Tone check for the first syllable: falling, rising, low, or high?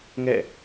falling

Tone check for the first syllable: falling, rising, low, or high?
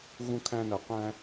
high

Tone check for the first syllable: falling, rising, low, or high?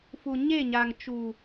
low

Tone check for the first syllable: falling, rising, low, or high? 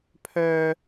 high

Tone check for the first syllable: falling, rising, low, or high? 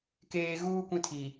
high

